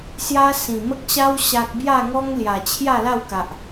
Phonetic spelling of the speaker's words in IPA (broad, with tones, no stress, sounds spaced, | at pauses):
s j a˦ s ĩ˨˩ m ə˦ k̚ ɕ a˦ w ɕ a˦ k̚ b j a˥˧ ŋ ɔ˦ ŋ l j a˨˩ t͡ɕʰ j a˥˧ l a˥˧ w k a˨ ʔ